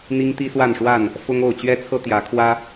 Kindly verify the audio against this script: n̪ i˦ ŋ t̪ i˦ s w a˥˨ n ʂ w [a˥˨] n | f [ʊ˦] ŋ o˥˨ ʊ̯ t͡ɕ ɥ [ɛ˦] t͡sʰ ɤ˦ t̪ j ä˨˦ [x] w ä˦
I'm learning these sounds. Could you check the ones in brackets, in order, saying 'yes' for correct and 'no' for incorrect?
yes, yes, yes, no

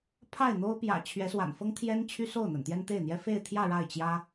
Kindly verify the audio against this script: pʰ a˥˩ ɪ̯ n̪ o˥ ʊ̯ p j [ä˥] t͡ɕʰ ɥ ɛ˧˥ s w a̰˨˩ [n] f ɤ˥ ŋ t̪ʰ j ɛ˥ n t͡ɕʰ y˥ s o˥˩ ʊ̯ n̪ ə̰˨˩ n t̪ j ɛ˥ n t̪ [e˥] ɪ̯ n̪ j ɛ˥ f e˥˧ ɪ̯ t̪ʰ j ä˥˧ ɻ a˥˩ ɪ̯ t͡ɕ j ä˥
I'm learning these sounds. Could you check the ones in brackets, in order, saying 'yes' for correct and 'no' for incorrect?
no, yes, no

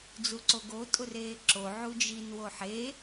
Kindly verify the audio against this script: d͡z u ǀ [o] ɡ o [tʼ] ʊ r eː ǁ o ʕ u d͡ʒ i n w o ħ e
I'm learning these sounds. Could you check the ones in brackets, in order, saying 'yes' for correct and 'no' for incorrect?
yes, yes

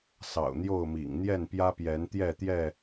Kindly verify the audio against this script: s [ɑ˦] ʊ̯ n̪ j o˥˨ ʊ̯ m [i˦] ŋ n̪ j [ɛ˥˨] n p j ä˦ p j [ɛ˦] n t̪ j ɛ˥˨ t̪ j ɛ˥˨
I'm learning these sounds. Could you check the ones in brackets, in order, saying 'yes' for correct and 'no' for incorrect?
no, no, yes, no

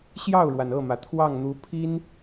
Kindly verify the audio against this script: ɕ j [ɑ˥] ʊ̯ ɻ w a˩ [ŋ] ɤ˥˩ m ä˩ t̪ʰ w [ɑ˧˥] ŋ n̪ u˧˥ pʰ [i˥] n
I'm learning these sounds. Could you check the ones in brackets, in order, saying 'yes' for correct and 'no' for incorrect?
no, no, no, yes

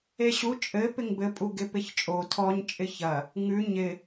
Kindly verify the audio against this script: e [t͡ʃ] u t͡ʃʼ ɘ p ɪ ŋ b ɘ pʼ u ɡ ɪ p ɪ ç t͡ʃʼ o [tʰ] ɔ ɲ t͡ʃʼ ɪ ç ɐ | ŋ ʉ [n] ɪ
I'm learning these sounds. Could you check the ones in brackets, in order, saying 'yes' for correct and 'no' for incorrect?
no, yes, no

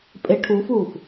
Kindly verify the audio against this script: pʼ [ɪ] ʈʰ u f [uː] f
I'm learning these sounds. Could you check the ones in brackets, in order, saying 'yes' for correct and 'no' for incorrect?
yes, yes

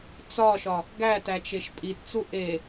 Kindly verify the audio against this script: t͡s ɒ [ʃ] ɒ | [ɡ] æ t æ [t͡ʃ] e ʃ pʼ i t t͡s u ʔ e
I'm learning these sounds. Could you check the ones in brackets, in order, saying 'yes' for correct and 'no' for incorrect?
yes, yes, yes

